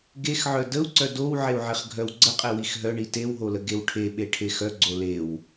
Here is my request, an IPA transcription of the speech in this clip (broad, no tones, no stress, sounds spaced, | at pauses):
ɡ e x ʕ œ d ə u̯ ǀ œ d o w ʕ e u̯ ʕ e χ ɡʱ œ w ɡ͡ǀ ə qʼ e w i x ɦ œ ɳ i t e w ɦ o l ə ɡ e w ʈʰ e ɓ e ʈʰ e x œ ɡ͡ǀ o l e w